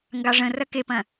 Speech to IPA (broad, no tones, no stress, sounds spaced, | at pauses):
ŋ ɡ ɑ ʐ ə̃ r ɐ k e p ɐ̃